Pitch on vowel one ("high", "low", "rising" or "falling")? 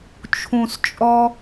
low